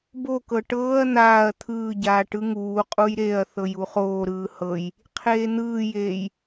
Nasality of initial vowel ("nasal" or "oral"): oral